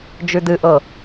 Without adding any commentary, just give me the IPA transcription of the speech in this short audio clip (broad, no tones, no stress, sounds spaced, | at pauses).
d͡ʒ ʉ d ɨ ʔ ɤ